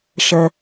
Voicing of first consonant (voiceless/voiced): voiceless